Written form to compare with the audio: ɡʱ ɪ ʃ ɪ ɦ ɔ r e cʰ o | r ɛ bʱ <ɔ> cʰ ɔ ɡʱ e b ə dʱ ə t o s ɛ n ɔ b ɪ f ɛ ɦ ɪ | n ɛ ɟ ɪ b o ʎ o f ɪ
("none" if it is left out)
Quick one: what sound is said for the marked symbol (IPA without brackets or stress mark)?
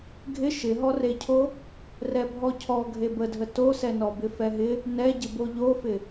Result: ɔ